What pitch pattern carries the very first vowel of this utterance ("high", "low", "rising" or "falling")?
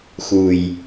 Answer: low